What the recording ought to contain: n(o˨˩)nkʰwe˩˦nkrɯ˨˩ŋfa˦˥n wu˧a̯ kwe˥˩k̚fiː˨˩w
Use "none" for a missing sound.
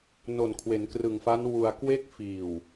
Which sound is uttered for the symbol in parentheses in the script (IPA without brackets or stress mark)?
o˨˩